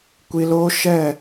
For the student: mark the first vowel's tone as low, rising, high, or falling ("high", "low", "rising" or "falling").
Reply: low